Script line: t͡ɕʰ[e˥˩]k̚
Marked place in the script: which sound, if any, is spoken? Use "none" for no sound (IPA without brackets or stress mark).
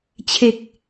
e˨˩